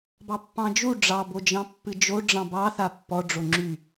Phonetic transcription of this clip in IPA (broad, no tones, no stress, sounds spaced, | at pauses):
b ɑ pː ɑ̃ d͡ʒ u ɖ͡ʐ ɑ b o d͡ʒ ɑ̃ pː ɨ d͡ʒ o ɖ͡ʐ ɑ̃ b ɑ θ a pː ɔ ɖ͡ʐ o ŋ͡ǁ y